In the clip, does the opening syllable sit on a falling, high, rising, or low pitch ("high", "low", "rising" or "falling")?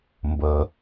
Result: low